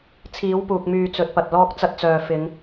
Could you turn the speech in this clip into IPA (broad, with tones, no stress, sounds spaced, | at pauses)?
t͡sʰ iː˨˥ w p uː˨ k̚ m yː˨ t͡s ɵ˨˥ t̚ p ɐ˨ t̚ l ɔː˥ k̚ t͡s ɐ˧ t̚ t͡s œː˨ f ɪ˨˧ ŋ